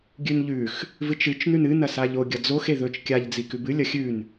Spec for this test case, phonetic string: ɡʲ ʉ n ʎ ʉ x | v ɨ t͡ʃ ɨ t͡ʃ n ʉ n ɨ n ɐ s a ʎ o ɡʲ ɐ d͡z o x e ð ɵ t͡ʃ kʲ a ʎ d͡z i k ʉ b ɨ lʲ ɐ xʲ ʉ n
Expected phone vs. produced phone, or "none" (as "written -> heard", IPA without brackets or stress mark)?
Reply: none